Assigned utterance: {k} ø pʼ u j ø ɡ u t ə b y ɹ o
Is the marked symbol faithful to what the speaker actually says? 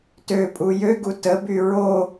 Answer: no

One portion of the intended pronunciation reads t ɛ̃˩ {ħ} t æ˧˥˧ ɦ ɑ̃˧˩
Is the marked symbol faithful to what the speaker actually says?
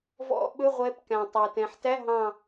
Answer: yes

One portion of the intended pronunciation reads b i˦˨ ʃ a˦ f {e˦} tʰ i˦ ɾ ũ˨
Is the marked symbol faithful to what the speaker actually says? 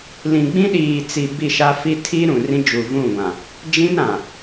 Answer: no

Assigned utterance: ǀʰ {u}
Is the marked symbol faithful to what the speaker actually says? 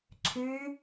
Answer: no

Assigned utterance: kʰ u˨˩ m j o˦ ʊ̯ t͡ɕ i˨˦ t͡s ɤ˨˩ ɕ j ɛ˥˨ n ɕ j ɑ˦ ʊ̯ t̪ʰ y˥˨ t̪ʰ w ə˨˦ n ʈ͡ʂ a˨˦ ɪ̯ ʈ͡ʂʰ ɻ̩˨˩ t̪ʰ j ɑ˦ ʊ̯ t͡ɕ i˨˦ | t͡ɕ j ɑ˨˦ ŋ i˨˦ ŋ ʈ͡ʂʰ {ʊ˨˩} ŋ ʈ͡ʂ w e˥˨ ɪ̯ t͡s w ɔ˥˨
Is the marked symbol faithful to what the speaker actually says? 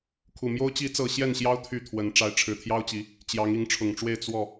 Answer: yes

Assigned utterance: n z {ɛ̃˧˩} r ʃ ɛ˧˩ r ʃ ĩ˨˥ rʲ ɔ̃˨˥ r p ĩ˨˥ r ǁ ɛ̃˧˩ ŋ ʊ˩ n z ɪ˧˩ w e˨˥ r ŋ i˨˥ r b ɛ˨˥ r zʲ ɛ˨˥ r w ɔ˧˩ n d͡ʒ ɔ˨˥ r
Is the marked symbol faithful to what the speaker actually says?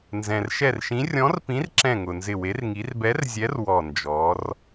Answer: no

